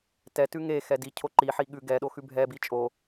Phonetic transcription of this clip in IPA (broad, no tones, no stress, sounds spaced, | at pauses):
t ɛ t ʉ ŋ e x ɛ d i cʰ o ǃ i ħ i ɠ ʉ ɡ ɛ ɗ o x ʉ bʱ ɛ b i t͡ʃʼ o